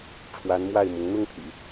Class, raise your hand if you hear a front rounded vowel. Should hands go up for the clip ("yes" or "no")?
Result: yes